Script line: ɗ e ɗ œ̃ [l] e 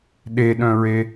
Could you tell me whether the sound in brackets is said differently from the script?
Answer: yes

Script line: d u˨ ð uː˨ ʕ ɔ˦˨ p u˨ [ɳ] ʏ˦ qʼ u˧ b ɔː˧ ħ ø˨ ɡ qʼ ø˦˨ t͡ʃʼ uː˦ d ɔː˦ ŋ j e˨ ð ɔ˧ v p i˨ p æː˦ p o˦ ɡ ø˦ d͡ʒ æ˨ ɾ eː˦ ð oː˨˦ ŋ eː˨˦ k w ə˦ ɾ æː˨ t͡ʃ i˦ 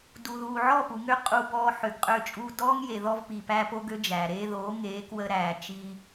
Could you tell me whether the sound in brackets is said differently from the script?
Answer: yes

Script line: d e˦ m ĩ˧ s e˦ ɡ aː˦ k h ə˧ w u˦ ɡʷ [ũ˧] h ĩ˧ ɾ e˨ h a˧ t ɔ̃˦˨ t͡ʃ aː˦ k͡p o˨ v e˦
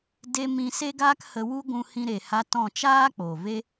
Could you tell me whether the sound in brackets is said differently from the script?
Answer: no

